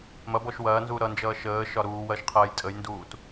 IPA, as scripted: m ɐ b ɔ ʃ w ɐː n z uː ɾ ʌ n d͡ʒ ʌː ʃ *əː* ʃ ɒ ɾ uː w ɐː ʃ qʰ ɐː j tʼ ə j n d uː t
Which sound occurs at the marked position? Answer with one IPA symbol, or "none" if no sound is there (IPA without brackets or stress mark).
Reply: əː